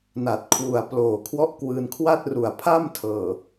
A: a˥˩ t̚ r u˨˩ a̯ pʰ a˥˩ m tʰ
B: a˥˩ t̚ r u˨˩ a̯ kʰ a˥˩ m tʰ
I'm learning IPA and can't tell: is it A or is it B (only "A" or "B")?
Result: A